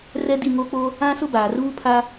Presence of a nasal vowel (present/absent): present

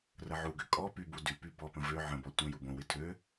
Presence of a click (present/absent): absent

